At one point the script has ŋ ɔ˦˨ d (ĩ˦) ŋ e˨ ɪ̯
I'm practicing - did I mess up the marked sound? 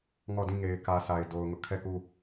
yes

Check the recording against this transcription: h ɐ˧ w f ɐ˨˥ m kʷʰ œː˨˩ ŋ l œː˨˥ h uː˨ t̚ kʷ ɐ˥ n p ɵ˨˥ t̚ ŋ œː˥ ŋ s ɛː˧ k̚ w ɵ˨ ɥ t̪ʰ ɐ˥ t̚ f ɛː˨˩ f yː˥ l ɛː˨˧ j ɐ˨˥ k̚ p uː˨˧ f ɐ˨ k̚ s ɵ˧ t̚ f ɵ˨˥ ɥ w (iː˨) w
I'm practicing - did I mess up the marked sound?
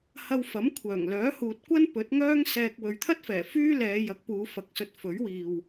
no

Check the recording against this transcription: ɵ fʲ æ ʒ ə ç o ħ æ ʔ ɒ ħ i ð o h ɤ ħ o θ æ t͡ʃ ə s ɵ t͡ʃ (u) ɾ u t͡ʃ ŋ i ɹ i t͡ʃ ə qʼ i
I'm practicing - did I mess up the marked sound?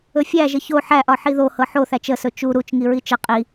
no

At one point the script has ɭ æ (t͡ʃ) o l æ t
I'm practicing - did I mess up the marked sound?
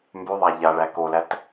yes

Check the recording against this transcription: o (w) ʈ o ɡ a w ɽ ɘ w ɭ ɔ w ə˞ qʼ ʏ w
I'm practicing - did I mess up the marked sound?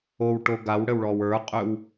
no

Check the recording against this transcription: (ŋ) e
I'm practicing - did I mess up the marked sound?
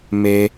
yes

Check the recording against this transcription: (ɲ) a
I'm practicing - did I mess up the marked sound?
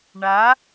yes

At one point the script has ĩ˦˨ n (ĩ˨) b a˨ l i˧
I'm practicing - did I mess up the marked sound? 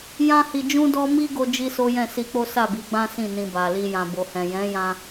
yes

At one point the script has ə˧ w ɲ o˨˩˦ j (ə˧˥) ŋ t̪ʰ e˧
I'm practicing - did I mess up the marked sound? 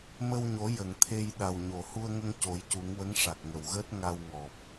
yes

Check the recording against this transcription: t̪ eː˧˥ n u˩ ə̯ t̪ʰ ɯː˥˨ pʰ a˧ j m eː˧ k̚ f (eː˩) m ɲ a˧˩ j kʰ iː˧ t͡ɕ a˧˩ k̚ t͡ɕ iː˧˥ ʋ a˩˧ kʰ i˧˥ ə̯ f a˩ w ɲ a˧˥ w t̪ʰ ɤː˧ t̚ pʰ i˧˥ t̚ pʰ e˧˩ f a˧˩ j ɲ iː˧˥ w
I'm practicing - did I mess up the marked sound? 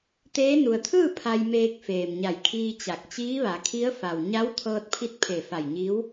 no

